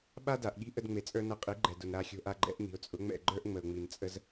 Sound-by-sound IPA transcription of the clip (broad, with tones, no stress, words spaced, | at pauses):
ɓa˥da˩ʔɠi̤˥ ʔə˧dŋ͡me˩t͡sʼə˞˧ nʌ˧qʼi˩˥ɡ͡ǃɛ˩dʊ˩n ɾa˧xʲo̤˧ʔa˧ɡ͡ǃɛ̰˩˥ʔ n̪i̤˩ʊ̯t͡sʼʊ˩˥ŋ͡mɛ̰˥˩ ɡ͡ǃə˞˥ʔ ŋ͡mə˩ʊ̯ŋ͡mi˩n t͡sʼə˧z